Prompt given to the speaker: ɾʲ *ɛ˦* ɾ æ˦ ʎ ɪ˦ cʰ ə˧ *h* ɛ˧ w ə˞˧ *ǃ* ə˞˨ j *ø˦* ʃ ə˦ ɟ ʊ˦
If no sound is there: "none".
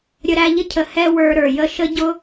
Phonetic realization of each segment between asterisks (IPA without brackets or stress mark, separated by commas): ə˦, h, ɾ, ə˦